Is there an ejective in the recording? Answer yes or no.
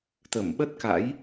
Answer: no